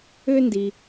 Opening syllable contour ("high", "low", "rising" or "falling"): high